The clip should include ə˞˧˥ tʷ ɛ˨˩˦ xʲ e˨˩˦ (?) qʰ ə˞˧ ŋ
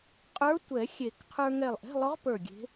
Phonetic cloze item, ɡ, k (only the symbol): k